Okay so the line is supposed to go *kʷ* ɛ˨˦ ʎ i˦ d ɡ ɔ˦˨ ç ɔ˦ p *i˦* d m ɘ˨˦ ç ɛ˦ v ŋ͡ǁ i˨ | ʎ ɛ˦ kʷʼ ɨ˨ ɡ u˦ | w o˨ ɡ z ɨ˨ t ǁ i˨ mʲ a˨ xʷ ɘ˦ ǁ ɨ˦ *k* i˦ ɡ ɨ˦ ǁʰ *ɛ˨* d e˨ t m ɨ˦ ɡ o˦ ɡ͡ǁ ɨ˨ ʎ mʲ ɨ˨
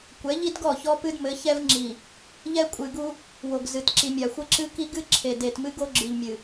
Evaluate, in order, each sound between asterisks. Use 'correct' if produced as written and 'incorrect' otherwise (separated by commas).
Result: correct, incorrect, correct, incorrect